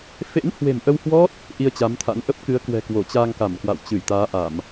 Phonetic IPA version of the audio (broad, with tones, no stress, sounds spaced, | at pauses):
f ḛ˧˥ n h w e̤˨˩ m ʔ ə˧ w h w ɔ˦˥ t̚ | ʔ i˧ ə̯ t͡ɕ a˨˦ m t̪ʰ a̰˧˥ n ʔ ə˦˥ p̚ k ɨ˨˦ ə̯ k w ɛ̤˨˩ k w o˧˩ t͡ɕ aː˧ ŋ k a˧˩ m k w a̰˧˨ w t͡ɕ ɨ˧˩ j t̪ aː˨˦ ʔ a˧˩˨ m